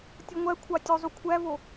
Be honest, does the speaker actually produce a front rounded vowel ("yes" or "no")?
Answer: yes